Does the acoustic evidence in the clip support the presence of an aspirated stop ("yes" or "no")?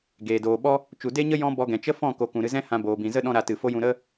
no